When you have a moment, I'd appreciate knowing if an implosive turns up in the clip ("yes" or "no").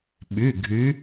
yes